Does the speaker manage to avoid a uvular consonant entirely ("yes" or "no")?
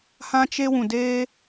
yes